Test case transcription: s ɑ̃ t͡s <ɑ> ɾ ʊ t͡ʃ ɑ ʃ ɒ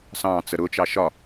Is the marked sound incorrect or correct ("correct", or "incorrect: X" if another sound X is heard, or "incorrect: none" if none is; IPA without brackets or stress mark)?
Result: incorrect: ə